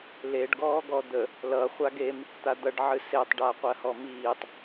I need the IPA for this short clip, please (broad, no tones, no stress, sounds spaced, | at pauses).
l e ɖ ɡ ɔː ɡ ɔ d̪ ə | l ʌ χʷ a ɡ e m | t̪ a d̪ ʌ ɖ ʕ ɨ s e tˤ ɖ a qʷ ɜ h ɔ m iː tˤ